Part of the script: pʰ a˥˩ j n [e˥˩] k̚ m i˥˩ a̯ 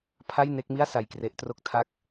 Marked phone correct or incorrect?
correct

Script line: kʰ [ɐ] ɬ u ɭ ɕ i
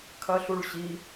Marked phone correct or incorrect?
correct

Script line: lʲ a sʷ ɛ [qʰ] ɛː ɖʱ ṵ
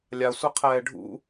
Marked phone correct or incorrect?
correct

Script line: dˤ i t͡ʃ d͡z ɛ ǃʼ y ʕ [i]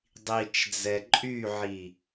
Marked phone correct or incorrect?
correct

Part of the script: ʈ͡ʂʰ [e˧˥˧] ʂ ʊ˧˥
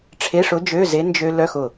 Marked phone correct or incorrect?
correct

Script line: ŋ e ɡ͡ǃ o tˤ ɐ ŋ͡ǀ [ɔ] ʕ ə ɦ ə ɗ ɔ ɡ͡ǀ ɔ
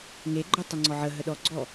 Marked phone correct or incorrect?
correct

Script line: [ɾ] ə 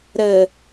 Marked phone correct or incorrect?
correct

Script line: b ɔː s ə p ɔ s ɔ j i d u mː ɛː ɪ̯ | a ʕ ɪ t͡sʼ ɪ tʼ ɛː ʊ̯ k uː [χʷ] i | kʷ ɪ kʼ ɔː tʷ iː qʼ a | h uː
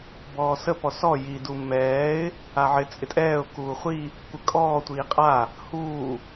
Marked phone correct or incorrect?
correct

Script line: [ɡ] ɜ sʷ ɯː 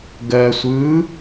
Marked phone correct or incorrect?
correct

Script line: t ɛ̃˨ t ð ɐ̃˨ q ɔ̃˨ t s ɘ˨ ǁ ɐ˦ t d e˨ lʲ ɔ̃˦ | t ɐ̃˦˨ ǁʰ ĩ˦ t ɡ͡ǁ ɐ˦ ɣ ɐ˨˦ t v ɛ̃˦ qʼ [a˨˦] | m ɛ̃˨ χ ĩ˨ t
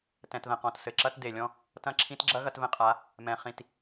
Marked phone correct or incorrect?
correct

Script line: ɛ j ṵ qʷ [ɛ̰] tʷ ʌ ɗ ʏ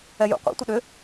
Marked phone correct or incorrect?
incorrect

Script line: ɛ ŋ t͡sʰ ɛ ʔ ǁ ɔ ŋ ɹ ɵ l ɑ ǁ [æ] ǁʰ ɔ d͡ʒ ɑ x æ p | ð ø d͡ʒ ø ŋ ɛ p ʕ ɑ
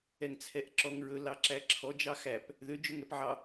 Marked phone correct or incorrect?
correct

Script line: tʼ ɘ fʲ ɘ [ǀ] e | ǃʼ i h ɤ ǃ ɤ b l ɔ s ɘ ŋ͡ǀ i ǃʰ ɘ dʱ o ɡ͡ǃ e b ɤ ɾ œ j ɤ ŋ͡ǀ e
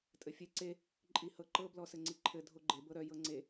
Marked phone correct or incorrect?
correct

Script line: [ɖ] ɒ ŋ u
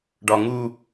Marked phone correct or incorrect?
correct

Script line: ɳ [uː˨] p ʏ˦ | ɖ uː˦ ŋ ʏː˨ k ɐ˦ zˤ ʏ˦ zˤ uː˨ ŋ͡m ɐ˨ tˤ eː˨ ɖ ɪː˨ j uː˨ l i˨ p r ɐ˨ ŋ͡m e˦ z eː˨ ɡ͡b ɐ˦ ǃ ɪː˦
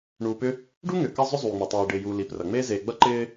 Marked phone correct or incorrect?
correct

